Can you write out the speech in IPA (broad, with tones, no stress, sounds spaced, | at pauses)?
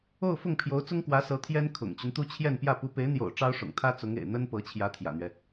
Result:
o˥˧ ʊ̯ f ʊ˥˩ ŋ pʰ j o˧˥ ʊ̯ t͡s ʊ˥ ŋ k w ä˧˥ s ɤ˧˥ t̪ʰ j ɛ˥ n kʰ ʊ̰˨˩ ŋ t͡ɕ y˦ n t̪ u˥ t͡ɕʰ j ɛ˥˧ n p j ä˥˩ p u˧˥ p e˧˥ ɪ̯ n̪ j o̰˨˩ ʊ̯ ʈ͡ʂ ɑ˥ ʊ̯ ʂ ʊ̰˨˩ ŋ t̪ʰ ä˥ t͡s ʊ˧˥ ŋ ḛ˨˩ ɪ̯ n̪ ə˥ n p ɤ˧˥ t͡ɕʰ j ä˧˥ t̪ʰ j ä̰˨˩ n̪ ɥ ɛ˦